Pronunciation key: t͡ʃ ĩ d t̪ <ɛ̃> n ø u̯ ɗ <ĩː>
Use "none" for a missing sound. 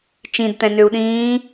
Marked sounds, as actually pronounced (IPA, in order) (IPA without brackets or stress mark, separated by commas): ɛ̃, ĩː